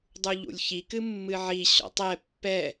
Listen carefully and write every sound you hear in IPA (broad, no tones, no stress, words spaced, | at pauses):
dˤuʎṵlʲçi kɨmːɨʕi ɕɔ̰tˤɛ pːɛ